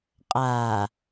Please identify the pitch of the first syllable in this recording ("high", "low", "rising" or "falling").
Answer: low